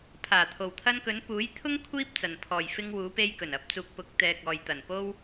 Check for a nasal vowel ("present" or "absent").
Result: absent